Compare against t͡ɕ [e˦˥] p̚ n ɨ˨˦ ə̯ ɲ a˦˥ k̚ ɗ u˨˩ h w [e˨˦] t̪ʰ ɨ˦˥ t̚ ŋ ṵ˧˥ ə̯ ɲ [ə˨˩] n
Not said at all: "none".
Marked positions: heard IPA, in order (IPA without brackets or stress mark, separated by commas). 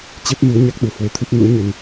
e˦˥, e˨˦, ə˧